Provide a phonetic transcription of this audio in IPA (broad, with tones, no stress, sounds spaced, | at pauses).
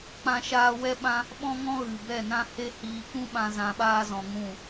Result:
k͡p ã˦ ʃ aː˦ w ɛ˦ ɓ ã˦ | ɓ ɔ̃˦ ŋ ɔ̃˦ ɣ ɨ˨ b ɛ˦˨ n ã˦ h e˦ h iː˧ k ũ˦ ɓ ã˧ z ã˧ ɓ aː˦ z ɔ̃˧ ŋ ũ˦˨